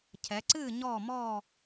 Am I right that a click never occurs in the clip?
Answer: no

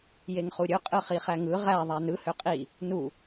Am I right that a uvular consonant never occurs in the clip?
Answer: no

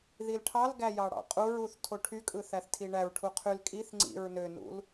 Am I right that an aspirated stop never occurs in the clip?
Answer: no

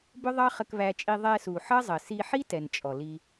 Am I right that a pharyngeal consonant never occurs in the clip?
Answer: no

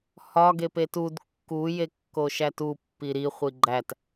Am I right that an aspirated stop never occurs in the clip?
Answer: yes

